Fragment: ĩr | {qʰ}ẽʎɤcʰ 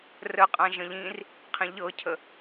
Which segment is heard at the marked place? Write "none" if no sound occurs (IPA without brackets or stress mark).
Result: qʰ